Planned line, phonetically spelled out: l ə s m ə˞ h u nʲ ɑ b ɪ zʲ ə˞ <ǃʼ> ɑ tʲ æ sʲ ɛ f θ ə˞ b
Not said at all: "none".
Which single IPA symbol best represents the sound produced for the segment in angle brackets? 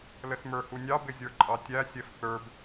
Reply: ǃʼ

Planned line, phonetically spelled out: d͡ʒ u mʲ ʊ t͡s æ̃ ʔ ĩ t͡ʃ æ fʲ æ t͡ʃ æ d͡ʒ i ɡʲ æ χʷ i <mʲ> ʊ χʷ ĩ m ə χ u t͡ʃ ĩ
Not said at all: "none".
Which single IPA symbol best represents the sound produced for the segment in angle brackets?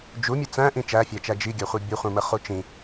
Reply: bʲ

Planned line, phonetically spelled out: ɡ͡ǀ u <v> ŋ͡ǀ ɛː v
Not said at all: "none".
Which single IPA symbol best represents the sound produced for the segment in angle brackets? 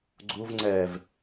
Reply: v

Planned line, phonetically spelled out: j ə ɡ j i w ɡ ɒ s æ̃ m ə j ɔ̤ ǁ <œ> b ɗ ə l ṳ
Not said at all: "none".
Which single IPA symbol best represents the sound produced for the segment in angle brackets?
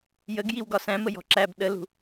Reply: æ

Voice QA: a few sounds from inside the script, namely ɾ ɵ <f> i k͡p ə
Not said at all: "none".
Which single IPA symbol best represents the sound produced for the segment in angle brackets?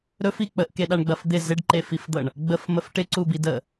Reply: f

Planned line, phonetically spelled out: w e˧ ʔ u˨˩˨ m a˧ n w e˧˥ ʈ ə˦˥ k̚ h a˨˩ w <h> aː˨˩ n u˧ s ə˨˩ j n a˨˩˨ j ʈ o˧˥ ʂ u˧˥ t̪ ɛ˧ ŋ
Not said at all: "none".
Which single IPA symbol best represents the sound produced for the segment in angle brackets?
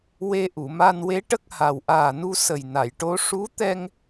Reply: ʔ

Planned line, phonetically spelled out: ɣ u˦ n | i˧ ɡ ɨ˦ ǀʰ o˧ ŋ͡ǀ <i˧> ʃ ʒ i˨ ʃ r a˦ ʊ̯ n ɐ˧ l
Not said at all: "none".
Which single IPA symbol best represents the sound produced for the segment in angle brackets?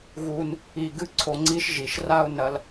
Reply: i˦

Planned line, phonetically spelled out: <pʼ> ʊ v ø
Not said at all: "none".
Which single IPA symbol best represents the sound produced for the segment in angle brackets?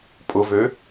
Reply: pʼ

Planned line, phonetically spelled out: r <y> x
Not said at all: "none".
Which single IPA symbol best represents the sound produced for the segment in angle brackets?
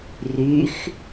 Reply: y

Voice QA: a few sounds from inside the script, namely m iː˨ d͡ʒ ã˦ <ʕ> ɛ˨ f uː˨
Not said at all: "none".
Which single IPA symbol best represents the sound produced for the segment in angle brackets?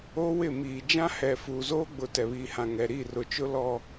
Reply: h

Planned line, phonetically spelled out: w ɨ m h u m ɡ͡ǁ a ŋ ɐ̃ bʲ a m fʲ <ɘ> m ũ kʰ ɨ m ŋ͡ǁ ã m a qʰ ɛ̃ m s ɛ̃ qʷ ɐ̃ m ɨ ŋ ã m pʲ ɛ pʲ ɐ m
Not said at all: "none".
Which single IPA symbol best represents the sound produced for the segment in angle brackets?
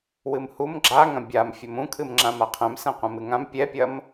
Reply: ɘ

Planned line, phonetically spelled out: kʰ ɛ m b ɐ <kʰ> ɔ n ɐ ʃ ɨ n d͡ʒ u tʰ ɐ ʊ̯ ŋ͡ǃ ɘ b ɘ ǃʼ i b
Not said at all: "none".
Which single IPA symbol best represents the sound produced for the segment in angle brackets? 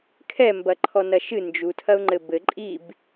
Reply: ǃʰ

